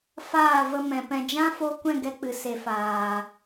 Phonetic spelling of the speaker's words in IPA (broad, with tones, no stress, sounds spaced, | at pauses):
f aː˦˨ v ə˧ m ɛ̃˨ p ɛ̃˨ d͡ʒ ã˦ f o˧ kʷ ɛ̃˦˨ ɡ ɛ˦ k͡p ɨ˨ s e˨ f aː˨